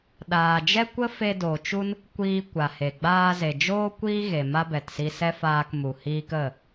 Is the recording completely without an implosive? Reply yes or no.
no